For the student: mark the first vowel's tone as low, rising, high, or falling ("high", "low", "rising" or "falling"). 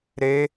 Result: rising